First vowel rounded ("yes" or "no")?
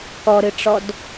yes